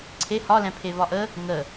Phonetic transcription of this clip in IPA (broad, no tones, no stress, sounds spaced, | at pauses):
ǀʰ e h ɒ l ɛ̃ pʰ e v ɒ ʔ ə | ŋ ə